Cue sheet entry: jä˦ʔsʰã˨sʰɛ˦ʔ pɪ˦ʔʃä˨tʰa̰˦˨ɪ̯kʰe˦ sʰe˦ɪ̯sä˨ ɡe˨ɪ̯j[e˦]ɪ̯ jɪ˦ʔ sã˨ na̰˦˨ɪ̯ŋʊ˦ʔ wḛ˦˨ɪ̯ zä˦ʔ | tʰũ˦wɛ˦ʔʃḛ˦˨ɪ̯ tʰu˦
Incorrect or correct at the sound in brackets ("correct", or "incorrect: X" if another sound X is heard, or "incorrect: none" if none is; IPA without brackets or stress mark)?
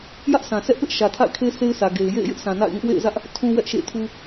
incorrect: ḛ˦˨